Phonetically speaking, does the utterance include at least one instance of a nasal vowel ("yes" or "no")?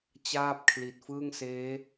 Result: no